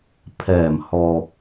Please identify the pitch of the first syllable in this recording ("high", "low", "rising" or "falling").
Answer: low